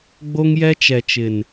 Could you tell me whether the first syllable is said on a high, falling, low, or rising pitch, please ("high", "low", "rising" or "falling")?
high